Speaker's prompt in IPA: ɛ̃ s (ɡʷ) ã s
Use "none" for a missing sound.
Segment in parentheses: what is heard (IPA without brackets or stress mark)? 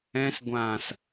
ɡʷ